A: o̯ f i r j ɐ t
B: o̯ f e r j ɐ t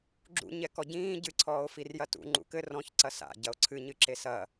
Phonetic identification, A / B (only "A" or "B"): A